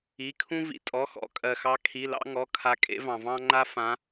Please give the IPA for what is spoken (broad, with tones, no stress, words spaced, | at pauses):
i˩˧˩kʰũ˦ vḭ˩ tʼɔ˩˧˩xɔ̰˩˧˩kʼɜ˩xɑ˨˦ kʰi˩˧˩lɑ̰˦ŋɔ˩˧˩kʰa˨˦ kʼḛ˨˦vɑ̃˩vɑ̃˦ŋ͡ǃa˦ fã˨˦